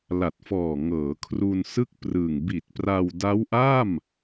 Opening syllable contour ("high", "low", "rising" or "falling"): low